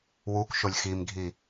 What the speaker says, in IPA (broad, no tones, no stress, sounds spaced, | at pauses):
w u k ʃ o lʲ x i m ɡʱ i